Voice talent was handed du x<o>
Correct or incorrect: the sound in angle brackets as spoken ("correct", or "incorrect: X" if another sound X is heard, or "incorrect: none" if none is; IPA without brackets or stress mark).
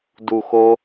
correct